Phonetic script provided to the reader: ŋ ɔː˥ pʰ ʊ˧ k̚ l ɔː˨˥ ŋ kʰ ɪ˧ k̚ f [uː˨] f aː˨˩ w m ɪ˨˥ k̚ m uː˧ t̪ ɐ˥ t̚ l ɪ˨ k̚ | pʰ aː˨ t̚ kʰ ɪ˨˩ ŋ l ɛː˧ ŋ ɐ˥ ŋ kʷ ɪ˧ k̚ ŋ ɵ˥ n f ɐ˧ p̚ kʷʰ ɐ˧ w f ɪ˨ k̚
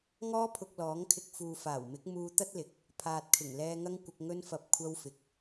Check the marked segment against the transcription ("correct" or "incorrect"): correct